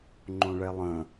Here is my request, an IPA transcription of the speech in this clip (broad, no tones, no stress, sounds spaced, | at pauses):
ŋ͡ǃ õ ɭ ɛ lˠ ə̃